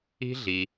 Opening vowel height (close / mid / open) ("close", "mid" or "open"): close